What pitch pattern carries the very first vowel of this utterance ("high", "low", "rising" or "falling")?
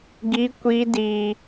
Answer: high